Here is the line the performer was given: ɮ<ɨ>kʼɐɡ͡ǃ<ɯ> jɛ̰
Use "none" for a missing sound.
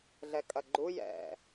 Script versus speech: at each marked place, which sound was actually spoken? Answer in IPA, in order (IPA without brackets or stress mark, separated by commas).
ɛ, u